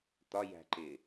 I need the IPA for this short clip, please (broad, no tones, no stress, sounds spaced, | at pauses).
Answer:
t̪ ɒ j æ̤ ǃ ɪ